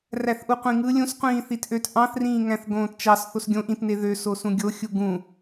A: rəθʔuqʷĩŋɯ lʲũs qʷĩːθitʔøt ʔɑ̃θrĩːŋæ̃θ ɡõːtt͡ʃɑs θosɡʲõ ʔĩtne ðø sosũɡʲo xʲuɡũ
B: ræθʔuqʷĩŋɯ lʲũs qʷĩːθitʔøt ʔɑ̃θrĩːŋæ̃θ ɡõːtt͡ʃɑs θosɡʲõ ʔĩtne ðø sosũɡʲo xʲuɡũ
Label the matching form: B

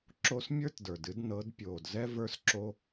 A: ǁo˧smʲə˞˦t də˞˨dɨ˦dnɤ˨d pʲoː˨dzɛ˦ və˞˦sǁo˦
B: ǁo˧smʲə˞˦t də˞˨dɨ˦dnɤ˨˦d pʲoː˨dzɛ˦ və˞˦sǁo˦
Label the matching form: B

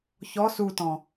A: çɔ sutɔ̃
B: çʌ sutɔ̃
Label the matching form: A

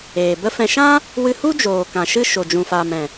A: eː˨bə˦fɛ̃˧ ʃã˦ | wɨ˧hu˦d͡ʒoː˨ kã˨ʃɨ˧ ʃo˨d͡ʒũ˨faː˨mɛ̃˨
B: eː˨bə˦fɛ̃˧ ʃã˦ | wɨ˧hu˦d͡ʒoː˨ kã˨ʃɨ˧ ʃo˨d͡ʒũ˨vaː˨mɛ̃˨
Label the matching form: A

